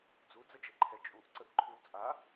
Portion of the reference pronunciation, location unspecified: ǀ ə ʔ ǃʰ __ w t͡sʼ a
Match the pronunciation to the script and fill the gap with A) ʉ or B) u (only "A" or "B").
A